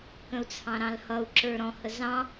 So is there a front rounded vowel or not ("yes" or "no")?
no